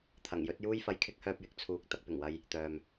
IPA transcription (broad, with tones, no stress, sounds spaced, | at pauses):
t̪ʰ ɐ˨˩ ŋ j ɵ˨˥ t̚ j uː˥ j f ɐ˧ j kʰ ɪ˥ k̚ h œː˧ p̚ j ɪ˨ k̚ t͡sʰ uː˧ k̚ t̪ ɐ˧ k̚ p ɪ˨˩ ŋ w ɐ˧ j | t̪ œː˨ m